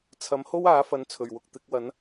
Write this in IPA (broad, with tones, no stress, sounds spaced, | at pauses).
t͡sʰ ɐ˨˥ m h o˥ w aː˨˥ f ɐ˨˧ n t͡sʰ ɵ˨˩ ɥ w ʊ˨ k̚ t̪ ɪ˨˥ k̚ w ɐ˨˥ n